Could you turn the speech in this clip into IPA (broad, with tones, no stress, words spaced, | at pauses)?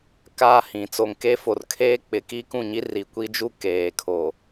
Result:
kaː˦hĩ˨ t͡so˨ŋke˦fo˨rkʰeː˦ k͡pɪ˨˦ki˦ kũ˦˨ɲi˦ri˨ kʷi˦d͡ʒu˦ keː˨kʰo˨